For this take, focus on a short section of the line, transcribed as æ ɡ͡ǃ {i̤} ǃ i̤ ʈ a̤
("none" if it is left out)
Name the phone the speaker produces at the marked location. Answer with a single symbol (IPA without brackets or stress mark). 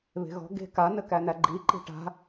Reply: i